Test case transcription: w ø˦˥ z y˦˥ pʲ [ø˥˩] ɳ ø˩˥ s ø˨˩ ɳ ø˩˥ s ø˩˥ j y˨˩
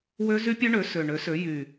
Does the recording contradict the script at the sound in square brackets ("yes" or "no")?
yes